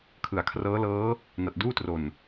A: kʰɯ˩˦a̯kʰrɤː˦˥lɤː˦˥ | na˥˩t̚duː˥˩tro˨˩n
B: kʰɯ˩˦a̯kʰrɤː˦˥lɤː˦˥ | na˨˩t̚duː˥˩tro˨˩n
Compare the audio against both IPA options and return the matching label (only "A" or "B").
B